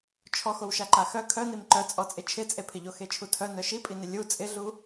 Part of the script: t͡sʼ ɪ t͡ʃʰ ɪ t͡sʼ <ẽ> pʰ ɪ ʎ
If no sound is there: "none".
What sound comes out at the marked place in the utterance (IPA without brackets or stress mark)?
e